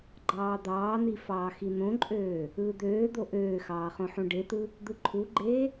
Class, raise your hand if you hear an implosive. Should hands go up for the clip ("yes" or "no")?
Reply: no